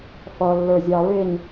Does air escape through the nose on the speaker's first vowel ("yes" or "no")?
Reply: no